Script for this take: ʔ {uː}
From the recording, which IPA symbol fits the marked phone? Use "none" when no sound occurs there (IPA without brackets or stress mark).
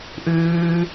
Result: ʉː